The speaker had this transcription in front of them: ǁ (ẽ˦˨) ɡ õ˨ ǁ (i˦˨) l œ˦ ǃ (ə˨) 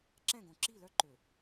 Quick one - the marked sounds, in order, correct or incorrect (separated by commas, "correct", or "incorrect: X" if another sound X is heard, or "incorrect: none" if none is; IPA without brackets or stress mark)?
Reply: incorrect: ɛ̃˦˨, correct, incorrect: ø˨